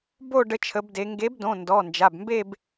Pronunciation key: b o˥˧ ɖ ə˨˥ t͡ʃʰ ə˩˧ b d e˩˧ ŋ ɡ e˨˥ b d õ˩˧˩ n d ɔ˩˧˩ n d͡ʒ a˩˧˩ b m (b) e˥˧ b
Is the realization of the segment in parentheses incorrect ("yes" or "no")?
no